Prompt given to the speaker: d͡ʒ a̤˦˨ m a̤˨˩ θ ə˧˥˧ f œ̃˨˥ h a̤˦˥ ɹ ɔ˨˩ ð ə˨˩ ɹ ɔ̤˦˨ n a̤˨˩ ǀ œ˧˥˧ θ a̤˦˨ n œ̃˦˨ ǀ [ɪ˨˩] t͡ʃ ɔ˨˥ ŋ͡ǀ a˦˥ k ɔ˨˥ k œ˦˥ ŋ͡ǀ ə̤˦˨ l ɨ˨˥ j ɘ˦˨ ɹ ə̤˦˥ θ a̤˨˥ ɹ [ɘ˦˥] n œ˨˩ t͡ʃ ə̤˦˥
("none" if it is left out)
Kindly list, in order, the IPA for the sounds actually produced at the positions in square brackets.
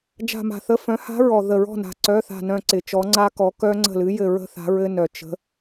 ɪ˨˩, ɘ˦˥

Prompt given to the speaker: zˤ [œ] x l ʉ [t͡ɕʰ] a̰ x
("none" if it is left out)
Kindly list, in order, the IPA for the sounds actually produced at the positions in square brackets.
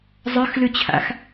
œ, t͡ɕʰ

